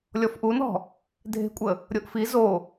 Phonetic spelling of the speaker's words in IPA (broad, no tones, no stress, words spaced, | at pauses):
lʲɔfʔunɔ̤ | dʱe̤kʷʼə | ɾʲoʔfi zo